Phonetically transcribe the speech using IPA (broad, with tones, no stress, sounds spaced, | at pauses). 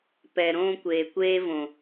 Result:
p ɛ˨ ɾ õː˦ kʷ eː˨ kʷ eː˦ v õ˨